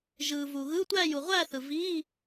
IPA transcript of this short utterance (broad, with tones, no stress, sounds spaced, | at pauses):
ʒ ɯː˨ v u˨ ɣ ɯː˧˥˧ tʷ æː˥˧ j u˨ ʁʷ æː˥˧ θ ɯ˨ v iː˧˥˧